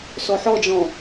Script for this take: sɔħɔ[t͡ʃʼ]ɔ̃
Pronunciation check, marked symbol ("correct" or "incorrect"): incorrect